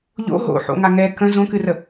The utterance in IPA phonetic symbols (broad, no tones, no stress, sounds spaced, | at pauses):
ʎ o̰ ɦ o̰ ħ o̰ ŋ a ŋ ɛ k ə̃ z õ k ɨ r ə